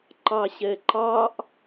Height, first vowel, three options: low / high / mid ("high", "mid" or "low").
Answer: low